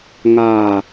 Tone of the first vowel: low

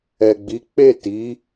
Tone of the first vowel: low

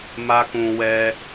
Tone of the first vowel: high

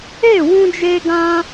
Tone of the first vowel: falling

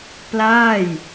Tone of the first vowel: falling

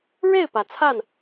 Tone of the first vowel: falling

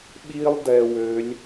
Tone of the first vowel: high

